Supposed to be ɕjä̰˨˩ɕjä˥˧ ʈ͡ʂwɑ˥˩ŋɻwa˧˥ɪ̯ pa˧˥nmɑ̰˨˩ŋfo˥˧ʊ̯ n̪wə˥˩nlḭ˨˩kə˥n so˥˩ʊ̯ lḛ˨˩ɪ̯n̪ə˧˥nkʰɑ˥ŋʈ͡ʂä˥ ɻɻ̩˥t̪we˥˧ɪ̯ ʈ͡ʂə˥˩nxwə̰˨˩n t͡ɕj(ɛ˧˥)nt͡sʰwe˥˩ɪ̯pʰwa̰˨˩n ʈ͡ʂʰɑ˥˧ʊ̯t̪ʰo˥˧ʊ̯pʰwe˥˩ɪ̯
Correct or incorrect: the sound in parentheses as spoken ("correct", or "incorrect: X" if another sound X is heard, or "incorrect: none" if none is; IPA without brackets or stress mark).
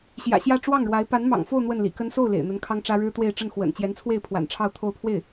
correct